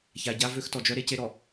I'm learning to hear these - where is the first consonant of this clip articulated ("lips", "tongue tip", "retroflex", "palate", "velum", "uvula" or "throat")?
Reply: palate